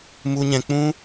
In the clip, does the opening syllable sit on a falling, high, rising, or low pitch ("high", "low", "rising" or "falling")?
high